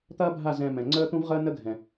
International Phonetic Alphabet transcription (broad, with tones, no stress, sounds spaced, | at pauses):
t̪ ɐː˦ bʱ a˦˨ z ɛ̃˧ m ɛ̃˨ ŋ͡ǀ əː˦ t̪ ũ˦ v ʁ əː˦ n ə˦ ɡʱ ɛ̃˨